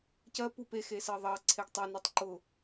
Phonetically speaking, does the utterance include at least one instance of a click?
yes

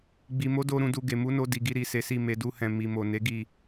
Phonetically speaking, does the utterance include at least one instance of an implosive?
no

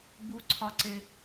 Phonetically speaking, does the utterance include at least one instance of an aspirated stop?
yes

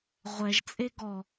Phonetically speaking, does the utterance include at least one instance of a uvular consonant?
yes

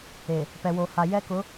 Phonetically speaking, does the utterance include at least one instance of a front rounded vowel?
no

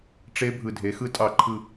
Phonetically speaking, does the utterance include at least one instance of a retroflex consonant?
yes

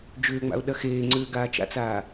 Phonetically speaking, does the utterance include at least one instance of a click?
yes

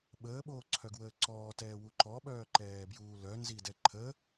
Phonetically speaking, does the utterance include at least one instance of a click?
yes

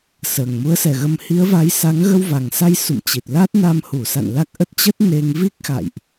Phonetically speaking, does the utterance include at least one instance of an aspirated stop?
no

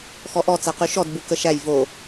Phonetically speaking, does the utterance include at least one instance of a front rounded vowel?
yes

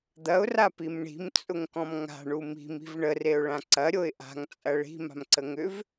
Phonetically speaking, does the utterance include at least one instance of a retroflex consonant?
yes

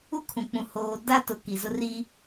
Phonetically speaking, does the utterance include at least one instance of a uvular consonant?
no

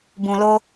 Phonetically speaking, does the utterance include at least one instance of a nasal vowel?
yes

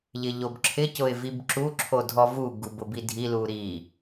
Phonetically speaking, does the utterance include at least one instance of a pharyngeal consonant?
no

